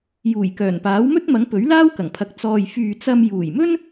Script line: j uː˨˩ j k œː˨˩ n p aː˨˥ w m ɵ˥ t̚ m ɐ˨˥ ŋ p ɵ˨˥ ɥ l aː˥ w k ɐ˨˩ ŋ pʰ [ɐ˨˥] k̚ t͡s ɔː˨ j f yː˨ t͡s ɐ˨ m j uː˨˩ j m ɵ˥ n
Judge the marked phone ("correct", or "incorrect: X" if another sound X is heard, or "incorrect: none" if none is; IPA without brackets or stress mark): correct